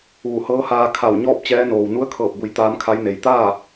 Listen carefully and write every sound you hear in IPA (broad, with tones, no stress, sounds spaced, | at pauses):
ʋ u˧˩ h ɤː˧˥ h aː˧ kʰ a˧˩ w ɲ ɔː˥˨ p̚ t͡ɕ ɛː˧˥ n oː˩ w n u˧˥ ə̯ kʰ ɤː˧˩ p̚ b u˩˧ j t̪ aː˧˥ m kʰ a˧˥ j n e˩ j t̪ aː˥˨